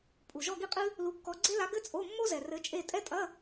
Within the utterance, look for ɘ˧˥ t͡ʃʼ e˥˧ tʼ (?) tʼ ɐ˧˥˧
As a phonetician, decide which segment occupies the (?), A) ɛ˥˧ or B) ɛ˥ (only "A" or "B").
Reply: B